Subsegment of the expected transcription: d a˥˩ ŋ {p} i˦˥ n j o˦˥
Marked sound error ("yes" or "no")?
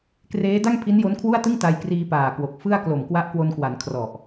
yes